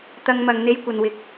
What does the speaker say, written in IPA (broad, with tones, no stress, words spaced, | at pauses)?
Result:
t̪ɐ˧ŋmɐ˨ŋ n̪e˥jkʷɐ˧nwɪ˧k̚